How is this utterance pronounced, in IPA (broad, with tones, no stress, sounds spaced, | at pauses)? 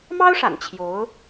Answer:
m ɑ˥ ʊ̯ ʂ a̰˨˩ n t͡ɕʰ j o˧˥ ʊ̯